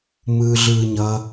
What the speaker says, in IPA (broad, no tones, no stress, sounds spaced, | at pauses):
m ɯː ɮ ɯː ɲ ʌ